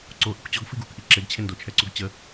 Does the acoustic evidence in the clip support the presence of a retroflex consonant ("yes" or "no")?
no